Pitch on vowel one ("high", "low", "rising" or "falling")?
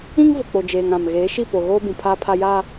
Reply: high